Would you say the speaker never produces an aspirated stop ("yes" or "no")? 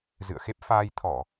no